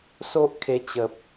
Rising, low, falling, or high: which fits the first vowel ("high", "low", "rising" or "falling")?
high